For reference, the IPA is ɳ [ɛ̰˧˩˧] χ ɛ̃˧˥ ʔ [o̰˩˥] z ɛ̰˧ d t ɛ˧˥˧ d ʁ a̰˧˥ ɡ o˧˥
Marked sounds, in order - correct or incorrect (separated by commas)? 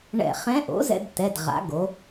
correct, correct